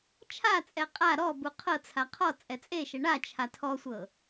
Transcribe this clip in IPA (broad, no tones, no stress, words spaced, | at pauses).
t͡ʃʰat͡sʼɛ qʼa ɾɔbu qʰɤt͡sʰa qʰɔ t͡sʼɛt͡sʼeʃɛ ɳat͡ʃʰa tʰɔsʷɤ